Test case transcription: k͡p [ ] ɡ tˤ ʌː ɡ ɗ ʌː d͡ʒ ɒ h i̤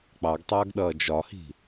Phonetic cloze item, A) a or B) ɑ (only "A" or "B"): B